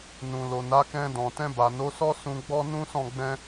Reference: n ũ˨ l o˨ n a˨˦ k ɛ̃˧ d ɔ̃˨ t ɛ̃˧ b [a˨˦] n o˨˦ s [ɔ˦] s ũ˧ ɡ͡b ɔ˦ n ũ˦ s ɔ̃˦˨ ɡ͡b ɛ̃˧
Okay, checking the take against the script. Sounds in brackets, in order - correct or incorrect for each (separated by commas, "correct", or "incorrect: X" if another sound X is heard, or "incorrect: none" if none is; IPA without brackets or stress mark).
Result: incorrect: a˨, correct